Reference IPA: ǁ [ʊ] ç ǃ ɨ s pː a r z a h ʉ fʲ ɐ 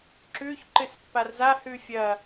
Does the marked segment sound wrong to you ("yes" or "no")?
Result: yes